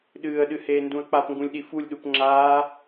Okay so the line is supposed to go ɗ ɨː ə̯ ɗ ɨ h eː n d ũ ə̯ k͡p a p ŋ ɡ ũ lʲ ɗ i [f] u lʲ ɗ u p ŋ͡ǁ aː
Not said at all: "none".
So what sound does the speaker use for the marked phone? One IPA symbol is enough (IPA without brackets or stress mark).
f